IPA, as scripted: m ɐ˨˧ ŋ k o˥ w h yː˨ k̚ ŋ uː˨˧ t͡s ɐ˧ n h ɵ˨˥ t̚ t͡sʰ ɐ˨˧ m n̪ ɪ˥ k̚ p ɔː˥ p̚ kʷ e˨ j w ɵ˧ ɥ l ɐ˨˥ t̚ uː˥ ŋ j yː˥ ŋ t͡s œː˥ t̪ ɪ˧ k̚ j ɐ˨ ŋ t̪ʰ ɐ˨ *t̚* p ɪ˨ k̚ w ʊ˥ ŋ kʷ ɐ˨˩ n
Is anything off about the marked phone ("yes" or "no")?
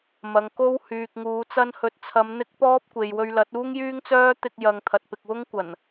no